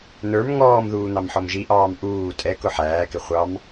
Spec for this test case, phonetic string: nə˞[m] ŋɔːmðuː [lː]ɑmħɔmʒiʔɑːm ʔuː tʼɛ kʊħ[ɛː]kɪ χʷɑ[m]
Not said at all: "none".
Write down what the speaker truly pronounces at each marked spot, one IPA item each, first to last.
m, n̪, æː, m

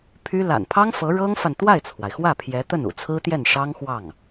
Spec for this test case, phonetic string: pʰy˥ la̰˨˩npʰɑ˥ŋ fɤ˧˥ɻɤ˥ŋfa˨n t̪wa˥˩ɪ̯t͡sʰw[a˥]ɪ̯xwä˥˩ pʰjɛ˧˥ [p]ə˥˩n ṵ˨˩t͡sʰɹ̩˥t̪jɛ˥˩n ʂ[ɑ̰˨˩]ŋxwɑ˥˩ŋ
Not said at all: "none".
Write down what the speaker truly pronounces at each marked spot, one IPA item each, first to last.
a˩, t̪, ɑ˥

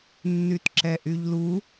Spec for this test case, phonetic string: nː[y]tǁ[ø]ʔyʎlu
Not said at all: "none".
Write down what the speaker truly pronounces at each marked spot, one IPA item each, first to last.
y, ɛ

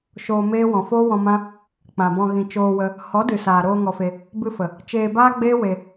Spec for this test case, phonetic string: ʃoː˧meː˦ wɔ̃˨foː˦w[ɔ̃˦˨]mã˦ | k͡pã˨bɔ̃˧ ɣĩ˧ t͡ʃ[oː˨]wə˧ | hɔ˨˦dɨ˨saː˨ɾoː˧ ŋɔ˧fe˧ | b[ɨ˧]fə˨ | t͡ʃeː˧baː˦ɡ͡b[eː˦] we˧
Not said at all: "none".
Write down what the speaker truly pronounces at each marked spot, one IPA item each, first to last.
ɔ̃˧, oː˧, ɨ˧, eː˦

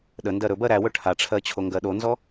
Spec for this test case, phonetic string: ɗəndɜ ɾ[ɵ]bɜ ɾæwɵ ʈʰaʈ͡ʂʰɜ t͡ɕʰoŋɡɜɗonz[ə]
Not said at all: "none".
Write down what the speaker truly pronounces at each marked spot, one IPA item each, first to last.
ɵ, ɔ

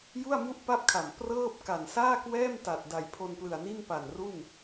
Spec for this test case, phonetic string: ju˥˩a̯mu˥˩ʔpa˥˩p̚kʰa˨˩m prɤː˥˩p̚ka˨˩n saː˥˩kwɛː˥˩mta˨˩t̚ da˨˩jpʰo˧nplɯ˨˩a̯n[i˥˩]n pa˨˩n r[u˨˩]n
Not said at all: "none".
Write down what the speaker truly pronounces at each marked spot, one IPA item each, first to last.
i˥˩, u˥˩

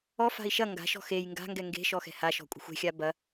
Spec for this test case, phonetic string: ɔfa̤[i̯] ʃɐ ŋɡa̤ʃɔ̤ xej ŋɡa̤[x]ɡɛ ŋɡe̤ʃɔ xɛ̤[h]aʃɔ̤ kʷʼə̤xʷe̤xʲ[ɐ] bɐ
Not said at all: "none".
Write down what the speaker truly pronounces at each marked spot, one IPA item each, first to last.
i̯, ŋ, h, a

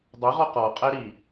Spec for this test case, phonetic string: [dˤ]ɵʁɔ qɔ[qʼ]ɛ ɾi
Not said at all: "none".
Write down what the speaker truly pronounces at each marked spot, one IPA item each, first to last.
dˤ, qʼ

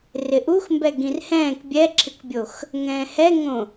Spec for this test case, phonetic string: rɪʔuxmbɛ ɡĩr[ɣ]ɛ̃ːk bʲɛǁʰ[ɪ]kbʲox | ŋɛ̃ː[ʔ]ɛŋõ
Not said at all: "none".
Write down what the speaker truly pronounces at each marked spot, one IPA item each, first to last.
h, ɪ, h

